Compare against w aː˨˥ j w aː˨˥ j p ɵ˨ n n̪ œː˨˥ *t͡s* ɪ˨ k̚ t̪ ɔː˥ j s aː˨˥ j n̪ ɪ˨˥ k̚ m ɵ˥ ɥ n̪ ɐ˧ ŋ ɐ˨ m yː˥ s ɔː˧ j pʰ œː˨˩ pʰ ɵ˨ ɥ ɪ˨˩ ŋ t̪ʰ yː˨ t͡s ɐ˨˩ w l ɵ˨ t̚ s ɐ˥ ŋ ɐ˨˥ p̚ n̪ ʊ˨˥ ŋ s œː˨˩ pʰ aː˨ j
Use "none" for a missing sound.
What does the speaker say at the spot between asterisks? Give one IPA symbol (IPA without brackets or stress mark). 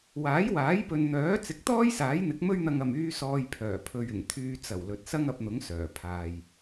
t͡s